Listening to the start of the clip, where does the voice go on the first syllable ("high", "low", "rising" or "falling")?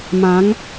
rising